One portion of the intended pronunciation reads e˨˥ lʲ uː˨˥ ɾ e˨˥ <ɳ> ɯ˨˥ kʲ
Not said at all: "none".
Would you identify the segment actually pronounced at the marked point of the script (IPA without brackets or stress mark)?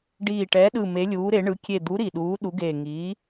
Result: ɳ